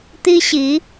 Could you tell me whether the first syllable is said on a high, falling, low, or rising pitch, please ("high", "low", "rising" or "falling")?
high